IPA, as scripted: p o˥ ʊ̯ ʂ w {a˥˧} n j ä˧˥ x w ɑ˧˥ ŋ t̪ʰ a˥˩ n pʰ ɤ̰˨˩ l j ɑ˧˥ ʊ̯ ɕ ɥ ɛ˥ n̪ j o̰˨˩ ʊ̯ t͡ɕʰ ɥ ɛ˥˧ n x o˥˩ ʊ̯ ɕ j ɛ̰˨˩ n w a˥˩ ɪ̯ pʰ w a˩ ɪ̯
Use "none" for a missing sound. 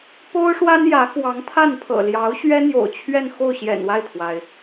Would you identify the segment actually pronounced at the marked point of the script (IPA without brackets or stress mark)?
a˥